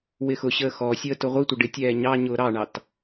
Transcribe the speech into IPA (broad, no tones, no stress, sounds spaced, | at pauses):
w ɪ x ʊ ɕ əː x ɔ sʲ əː t ʊ ʁʷ i tʷ ə ɖ ɪ tʲ ɛː ɲ ɑ ɲ ʊː ɾ ɑ ɳ ɑ t